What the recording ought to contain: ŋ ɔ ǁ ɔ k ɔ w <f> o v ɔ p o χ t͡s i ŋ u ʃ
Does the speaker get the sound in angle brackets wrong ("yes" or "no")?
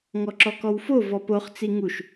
no